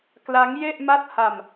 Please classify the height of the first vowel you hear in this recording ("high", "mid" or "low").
low